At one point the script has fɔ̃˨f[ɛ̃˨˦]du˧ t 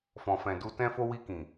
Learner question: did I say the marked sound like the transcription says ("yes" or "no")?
no